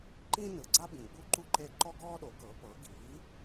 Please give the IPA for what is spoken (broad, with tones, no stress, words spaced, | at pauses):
ǃĩ˥ nɯ˩ɡ͡ǀa˥bĩ˩ ɡ͡bu˥ǃu˥ǃe˥˩ ǃɔ˥ɡɔː˥ɗo˩˥kɤ˩˥ pɤ˩˥ ɡi˩˥